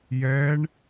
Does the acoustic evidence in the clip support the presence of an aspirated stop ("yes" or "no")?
no